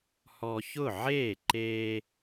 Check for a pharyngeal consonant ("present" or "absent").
present